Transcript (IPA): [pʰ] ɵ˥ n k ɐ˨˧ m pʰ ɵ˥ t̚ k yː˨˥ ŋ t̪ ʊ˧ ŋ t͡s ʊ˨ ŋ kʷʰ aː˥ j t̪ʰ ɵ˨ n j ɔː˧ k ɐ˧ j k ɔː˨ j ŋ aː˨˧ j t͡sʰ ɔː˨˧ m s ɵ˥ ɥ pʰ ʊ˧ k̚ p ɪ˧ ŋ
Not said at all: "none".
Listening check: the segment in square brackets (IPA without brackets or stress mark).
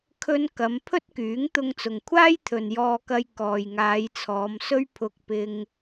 kʰ